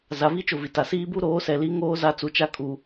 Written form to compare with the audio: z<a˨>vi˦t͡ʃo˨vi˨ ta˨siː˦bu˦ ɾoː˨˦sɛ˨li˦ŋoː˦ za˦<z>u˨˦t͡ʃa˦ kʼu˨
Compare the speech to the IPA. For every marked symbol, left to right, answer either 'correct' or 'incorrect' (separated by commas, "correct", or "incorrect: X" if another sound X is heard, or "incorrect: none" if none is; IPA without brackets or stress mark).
correct, incorrect: t͡s